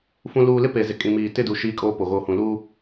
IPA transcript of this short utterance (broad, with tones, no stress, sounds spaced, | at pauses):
f ũ˨ l uː˨ l ɪ˦ p e˨ z ɪ˨ kʼ ĩ˨ m iː˨ t ɪ˦˨ d u˨ ʃ iː˦ kʼ oː˦ p o˨ ɣ oː˨ h ũ˨ l uː˦